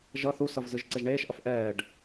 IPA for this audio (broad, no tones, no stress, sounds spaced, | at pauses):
ʒ ʌ θ u s ʌ v z ɯ ʒ ǀ e ʒ ɳ eː ʃ ʔ ʌ f ʔ ɛː ɖ